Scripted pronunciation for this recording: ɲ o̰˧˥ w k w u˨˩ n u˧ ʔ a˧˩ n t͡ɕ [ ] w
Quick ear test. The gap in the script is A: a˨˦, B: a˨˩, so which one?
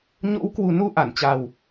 B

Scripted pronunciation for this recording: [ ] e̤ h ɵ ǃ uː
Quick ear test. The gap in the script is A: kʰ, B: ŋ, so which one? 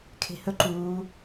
A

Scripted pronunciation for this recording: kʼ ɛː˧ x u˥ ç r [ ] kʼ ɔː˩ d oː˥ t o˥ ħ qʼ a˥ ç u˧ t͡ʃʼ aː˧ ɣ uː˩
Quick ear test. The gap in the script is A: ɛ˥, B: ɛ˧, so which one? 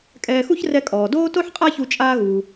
B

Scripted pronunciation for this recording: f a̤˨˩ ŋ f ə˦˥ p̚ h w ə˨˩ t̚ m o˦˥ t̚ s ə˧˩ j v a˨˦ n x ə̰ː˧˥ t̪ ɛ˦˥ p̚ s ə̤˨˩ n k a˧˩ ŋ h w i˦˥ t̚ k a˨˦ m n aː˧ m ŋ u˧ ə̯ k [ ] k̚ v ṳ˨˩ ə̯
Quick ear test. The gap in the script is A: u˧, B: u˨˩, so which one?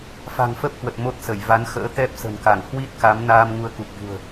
B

